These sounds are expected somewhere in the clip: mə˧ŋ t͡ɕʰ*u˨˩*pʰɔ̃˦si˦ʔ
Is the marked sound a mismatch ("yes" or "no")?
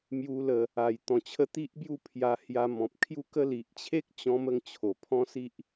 yes